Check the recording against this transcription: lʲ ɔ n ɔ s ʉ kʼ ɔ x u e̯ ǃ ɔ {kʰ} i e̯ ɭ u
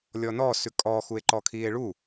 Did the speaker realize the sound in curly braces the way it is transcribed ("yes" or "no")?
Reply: yes